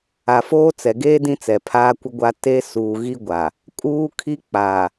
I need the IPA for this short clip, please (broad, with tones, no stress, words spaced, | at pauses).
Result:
a˨foː˦t͡sɛ˨ ɡeː˦ dĩ˦t͡sɛ˨pʰaː˦ kʷɪ˦ɡʷa˦ te˦suː˨ ɣi˦ɡʷa˨ | kʼuː˦kʰi˦k͡pa˨